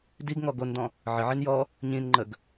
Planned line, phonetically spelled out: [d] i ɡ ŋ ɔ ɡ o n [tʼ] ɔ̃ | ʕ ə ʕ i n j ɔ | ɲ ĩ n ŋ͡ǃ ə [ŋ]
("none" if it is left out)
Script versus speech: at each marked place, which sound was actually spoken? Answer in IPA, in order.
d, d, ɡ

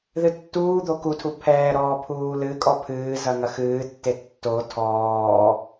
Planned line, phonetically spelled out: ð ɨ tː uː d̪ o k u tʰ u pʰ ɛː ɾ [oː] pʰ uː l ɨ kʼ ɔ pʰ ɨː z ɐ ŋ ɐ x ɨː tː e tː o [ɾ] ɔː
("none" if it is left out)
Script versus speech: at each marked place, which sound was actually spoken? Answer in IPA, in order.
ɔː, tʰ

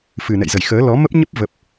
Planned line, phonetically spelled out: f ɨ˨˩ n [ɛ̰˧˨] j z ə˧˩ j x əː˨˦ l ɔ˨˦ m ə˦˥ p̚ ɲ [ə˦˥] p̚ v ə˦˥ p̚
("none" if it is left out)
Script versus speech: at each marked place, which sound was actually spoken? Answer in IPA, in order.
ɛ̰˧˨, ə˦˥

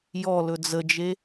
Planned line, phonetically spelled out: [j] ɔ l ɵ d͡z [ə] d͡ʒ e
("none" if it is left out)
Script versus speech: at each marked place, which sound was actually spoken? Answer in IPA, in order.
j, ə

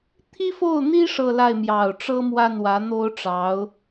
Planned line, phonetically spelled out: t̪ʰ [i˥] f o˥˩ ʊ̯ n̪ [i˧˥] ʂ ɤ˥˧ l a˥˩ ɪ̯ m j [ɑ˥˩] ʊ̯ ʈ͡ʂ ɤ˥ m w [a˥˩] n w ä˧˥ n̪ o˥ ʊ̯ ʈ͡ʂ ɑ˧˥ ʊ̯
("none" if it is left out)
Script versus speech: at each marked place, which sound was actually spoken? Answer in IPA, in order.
i˥, i˥, ɑ˨˩, a˥˩

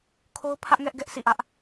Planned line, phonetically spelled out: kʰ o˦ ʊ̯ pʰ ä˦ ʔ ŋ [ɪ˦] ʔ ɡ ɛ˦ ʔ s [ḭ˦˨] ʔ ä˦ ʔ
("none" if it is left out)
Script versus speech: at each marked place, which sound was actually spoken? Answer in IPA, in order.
ɛ˦, ḭ˦˨

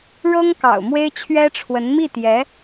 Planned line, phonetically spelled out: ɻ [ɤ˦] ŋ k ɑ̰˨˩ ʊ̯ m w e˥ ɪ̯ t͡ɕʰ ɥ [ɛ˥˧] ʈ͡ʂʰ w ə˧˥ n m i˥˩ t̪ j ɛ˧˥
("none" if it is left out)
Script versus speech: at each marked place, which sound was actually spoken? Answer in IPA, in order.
ɤ˥, ɛ˥

